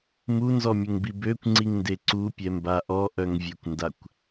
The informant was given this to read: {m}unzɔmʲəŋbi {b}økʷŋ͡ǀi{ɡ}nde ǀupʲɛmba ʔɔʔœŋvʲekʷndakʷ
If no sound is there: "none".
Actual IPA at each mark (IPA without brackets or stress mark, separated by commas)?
m, b, ŋ